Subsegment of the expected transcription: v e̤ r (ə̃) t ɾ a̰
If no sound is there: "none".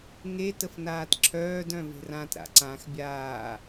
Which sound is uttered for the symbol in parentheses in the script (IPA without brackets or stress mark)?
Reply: ã